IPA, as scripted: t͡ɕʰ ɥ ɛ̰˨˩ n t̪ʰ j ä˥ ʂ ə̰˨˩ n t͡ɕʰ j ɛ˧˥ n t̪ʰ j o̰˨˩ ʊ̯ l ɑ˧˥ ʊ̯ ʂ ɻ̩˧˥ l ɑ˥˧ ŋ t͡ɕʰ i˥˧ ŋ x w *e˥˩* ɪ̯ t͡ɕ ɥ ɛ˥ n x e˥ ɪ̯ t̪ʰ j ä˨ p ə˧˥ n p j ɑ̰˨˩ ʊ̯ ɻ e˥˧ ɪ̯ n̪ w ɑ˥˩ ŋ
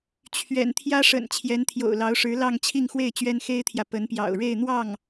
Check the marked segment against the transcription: correct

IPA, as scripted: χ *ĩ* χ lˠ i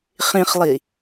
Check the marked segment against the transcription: correct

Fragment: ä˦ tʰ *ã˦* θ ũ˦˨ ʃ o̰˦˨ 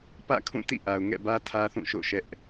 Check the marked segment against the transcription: incorrect: ä˦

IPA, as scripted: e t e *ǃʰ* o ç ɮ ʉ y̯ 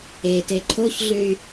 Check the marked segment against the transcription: correct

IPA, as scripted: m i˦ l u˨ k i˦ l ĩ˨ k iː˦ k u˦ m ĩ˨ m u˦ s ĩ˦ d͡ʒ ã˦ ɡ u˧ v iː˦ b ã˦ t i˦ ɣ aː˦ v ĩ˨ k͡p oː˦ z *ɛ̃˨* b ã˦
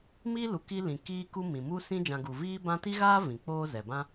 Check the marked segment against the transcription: incorrect: ɛ˨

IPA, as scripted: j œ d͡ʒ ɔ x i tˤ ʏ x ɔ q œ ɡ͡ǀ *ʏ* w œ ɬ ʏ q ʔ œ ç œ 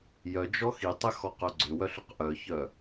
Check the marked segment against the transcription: correct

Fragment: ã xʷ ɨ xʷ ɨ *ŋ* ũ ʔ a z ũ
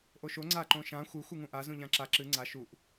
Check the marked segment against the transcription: correct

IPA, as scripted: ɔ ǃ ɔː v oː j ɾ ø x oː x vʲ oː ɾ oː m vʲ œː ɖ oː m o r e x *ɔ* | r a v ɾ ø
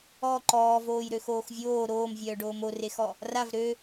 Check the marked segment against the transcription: correct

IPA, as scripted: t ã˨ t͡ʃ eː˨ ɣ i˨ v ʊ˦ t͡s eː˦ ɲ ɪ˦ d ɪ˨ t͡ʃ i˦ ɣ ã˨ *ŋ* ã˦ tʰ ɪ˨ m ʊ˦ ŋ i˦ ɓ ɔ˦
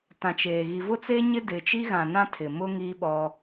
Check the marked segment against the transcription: incorrect: n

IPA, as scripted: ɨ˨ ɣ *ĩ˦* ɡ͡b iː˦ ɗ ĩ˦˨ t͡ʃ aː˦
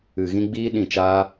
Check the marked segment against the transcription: incorrect: ĩ˧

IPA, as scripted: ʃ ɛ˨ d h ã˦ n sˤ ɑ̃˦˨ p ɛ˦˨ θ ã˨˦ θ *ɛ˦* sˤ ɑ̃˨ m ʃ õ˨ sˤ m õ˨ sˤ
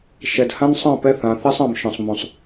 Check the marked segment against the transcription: correct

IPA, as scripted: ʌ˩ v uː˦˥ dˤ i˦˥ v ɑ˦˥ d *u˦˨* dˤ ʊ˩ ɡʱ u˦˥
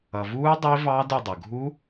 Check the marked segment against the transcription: incorrect: ʊ˦˨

